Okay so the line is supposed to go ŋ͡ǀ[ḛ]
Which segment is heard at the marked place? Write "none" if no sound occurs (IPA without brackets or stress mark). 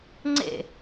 ḛ